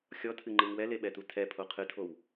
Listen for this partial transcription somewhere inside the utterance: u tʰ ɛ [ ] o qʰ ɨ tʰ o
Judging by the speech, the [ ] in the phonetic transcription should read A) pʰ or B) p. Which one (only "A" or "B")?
A